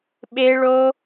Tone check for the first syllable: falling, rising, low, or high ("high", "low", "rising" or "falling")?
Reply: high